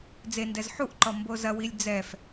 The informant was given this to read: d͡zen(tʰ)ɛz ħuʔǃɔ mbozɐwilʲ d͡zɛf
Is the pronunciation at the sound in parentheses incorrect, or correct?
incorrect